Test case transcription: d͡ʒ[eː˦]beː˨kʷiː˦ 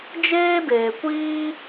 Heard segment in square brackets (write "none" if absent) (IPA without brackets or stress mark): eː˦